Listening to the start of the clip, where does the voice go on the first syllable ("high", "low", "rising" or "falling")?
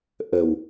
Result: low